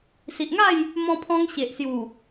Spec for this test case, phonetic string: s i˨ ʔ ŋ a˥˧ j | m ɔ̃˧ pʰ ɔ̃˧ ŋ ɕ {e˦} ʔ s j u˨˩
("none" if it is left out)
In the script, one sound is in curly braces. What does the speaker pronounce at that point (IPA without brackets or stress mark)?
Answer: e˨